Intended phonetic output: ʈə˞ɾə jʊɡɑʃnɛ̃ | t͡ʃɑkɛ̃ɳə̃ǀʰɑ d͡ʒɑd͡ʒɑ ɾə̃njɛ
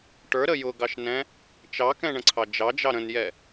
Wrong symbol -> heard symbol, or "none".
none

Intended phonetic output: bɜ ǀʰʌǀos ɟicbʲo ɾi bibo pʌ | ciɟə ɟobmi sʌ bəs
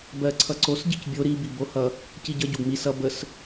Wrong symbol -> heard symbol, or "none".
p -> h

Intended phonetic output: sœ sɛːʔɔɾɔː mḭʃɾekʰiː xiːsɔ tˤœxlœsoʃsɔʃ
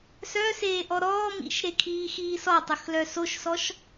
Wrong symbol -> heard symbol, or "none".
ɛː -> eː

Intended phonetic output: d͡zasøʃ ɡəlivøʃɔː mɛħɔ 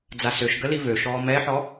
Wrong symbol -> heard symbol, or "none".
none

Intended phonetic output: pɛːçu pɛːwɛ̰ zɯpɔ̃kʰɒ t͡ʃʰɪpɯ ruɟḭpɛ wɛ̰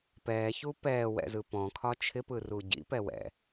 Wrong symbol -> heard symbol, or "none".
none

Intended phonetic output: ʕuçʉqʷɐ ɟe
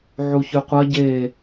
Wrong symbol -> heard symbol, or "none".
none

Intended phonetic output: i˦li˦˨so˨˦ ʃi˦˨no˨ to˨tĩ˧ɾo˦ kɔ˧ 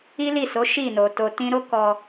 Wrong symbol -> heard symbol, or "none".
none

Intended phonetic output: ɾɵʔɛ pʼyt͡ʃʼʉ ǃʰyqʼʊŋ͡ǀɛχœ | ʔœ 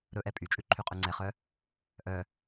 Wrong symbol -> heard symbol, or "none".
ʊ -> ʉ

